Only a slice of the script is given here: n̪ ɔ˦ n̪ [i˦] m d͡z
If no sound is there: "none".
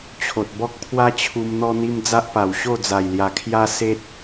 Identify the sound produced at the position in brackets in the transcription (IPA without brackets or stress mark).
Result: i˦